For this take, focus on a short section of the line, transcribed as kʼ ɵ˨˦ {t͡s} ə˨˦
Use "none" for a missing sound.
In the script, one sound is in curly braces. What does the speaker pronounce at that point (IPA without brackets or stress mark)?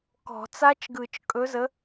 z